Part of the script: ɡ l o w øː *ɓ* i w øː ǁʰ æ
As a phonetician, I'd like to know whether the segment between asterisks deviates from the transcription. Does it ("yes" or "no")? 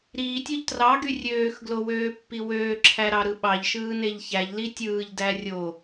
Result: yes